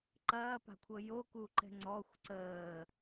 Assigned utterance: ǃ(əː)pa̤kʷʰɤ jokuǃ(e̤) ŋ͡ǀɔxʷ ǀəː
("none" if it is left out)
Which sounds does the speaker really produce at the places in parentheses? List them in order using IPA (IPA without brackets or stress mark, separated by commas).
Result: ɐː, ɛ̤